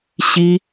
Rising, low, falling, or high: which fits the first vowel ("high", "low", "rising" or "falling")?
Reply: high